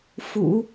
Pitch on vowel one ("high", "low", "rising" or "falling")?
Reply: low